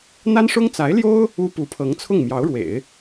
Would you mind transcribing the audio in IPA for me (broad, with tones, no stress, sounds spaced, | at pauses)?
n̪ a˥ n ʂ ʊ˥ ŋ t͡s a˧˥ ɪ̯ l j o˥ ʊ̯ | u˥ p u˧˥ pʰ ɤ˧˥ ŋ t͡sʰ ʊ˥˩ ŋ m j ɑ˧˥ ʊ̯ ɻ w ḛ˨˩˦ ɪ̯